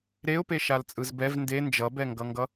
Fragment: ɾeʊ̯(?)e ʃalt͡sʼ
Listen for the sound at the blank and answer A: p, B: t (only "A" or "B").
A